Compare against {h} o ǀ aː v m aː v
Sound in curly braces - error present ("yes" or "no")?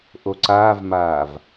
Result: yes